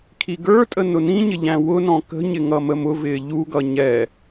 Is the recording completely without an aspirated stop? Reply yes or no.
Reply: no